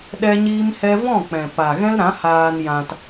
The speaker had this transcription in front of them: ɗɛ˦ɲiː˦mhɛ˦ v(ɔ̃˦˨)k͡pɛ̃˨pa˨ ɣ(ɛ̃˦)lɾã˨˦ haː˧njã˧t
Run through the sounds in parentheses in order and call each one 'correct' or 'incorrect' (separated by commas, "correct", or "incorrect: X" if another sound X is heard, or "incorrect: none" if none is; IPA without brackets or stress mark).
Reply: correct, correct